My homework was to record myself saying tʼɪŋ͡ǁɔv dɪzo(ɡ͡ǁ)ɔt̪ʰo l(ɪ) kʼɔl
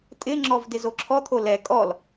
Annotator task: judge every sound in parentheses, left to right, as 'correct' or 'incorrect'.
incorrect, incorrect

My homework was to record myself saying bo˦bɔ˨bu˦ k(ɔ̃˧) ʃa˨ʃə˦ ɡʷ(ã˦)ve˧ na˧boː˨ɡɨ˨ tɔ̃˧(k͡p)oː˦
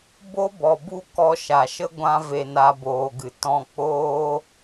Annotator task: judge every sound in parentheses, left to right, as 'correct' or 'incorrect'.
incorrect, correct, correct

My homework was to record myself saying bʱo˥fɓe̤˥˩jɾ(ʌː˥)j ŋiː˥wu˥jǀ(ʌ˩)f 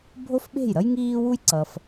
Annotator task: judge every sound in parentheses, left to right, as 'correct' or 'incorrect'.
incorrect, correct

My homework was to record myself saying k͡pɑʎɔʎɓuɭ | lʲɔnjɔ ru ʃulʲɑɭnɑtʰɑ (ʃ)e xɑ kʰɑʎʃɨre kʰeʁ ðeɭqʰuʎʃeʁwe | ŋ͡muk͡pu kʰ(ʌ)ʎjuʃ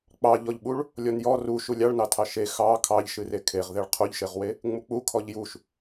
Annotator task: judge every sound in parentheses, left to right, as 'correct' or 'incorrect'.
correct, incorrect

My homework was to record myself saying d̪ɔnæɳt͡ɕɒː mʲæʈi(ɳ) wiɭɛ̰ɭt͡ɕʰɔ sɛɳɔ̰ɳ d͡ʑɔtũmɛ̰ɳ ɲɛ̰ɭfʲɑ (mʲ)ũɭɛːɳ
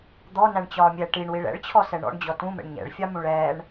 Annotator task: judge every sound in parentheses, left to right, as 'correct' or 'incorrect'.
correct, incorrect

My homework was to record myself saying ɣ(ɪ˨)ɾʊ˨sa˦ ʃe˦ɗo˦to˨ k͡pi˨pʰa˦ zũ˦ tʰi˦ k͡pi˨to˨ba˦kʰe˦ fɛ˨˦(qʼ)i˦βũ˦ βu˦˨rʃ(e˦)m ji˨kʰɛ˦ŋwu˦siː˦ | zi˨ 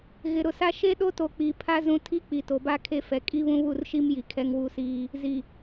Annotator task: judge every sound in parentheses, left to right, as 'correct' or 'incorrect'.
correct, incorrect, incorrect

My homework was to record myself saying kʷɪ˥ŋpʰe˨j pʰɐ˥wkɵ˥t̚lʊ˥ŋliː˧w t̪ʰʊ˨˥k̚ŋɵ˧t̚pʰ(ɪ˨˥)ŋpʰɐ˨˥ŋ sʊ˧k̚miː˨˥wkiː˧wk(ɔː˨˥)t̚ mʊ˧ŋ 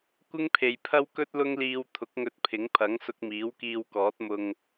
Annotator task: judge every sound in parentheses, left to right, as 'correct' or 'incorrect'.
correct, correct

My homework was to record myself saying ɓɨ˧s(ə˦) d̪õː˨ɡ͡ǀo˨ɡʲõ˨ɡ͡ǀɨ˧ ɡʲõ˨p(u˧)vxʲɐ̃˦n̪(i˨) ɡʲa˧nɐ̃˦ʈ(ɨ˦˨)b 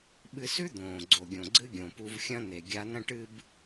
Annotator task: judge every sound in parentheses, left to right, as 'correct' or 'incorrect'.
incorrect, correct, incorrect, incorrect

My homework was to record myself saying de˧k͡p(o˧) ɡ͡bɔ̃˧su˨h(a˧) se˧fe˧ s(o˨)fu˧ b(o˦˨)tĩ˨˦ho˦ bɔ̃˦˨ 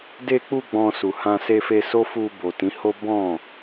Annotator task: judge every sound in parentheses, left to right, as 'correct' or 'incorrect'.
incorrect, incorrect, incorrect, incorrect

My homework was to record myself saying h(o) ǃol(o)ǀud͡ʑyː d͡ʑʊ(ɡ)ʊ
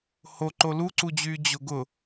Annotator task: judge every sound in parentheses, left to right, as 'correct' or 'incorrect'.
correct, incorrect, correct

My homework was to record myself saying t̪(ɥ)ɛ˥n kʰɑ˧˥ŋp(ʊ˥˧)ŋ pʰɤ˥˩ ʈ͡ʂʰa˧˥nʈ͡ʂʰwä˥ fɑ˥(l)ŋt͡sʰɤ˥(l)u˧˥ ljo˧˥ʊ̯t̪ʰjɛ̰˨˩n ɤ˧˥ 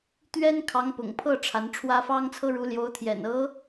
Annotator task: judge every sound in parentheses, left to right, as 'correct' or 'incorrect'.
correct, incorrect, incorrect, incorrect

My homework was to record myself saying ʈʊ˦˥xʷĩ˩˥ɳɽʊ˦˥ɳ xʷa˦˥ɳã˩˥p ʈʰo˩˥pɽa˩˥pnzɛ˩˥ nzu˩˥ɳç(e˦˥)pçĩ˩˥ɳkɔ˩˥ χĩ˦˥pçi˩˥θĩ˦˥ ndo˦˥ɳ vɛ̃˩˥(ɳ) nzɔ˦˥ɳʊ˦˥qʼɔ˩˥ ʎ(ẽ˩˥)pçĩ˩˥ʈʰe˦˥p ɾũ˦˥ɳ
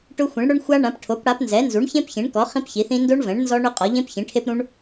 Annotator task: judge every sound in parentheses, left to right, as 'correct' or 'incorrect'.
incorrect, correct, incorrect

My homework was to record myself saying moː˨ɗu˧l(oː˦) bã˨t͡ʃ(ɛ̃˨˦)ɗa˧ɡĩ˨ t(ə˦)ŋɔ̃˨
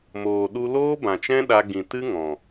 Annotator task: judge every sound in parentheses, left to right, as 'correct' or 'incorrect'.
correct, incorrect, incorrect

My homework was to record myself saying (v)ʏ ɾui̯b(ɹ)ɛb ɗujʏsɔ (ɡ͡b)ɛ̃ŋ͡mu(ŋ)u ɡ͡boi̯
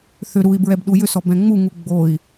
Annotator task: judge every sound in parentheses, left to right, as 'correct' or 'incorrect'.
incorrect, correct, incorrect, correct

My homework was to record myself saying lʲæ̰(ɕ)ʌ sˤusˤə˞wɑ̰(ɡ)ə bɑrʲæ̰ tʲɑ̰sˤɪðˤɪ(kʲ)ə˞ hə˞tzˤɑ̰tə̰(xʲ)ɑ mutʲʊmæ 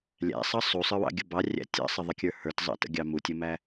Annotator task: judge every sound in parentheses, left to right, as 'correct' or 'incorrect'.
incorrect, incorrect, correct, incorrect

